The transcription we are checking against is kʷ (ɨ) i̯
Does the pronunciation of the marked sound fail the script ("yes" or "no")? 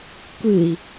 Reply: no